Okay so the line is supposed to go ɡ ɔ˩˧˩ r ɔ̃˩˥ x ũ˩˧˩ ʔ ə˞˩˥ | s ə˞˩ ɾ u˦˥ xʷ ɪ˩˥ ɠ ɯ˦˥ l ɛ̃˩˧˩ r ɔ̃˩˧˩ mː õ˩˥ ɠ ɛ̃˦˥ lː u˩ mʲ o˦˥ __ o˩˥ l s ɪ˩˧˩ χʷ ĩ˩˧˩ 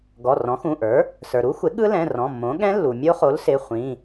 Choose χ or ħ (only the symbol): χ